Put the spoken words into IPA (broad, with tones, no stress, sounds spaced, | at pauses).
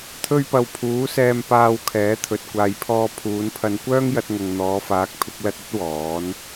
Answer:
t̪ʰ ɵ˧ ɥ p ɐ˨ w pʰ uː˨˥ s ɛː˧ m p aː˧ w kʰ ɛː˨˥ t̪ʰ ɵ˨ t̚ kʷ aː˨ j pʰ ɔː˧ pʰ uː˨˧ n pʰ ɐ˧ n kʷ œː˥ ŋ j ɐ˧ t̚ ŋ ɐ˨ ŋ n̪ ɔː˨˧ f aː˨˥ k̚ pʰ ɪ˨˥ k̚ l ɐ˧ t̚ ɵ˥ t̚ w ɔː˨˥ n